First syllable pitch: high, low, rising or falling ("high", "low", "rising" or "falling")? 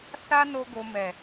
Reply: high